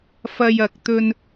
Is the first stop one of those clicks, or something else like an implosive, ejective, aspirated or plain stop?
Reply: plain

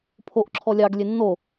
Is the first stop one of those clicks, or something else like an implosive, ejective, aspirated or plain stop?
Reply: aspirated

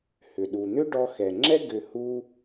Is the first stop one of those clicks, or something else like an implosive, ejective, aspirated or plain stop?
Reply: implosive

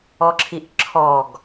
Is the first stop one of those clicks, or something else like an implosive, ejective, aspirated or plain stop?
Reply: click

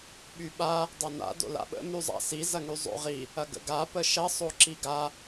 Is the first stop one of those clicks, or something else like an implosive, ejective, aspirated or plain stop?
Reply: implosive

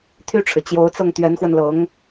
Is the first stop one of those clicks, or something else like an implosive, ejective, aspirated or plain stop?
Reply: aspirated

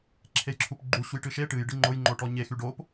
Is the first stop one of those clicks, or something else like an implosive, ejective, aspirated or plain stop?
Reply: click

